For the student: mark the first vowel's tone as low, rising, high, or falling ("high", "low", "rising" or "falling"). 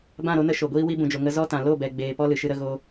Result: falling